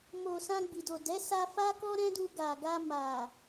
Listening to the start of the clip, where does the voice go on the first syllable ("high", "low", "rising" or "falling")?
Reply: low